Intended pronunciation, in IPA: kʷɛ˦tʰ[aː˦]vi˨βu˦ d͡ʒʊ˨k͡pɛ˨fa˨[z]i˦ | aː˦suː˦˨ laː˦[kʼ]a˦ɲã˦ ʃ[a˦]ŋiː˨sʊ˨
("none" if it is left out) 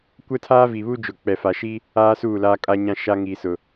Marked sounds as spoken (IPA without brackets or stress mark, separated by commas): aː˦, ʃ, kʼ, a˦